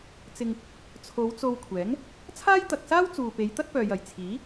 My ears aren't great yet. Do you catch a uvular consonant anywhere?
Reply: no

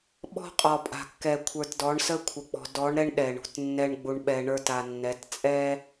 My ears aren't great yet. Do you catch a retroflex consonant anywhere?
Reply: yes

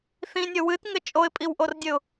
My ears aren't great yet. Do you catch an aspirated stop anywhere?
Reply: no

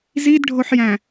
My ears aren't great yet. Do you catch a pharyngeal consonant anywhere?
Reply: yes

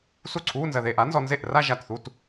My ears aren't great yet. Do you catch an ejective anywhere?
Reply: no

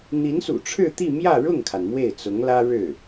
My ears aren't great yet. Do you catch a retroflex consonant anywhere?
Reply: yes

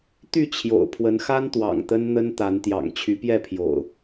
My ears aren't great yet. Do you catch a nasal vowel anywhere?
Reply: no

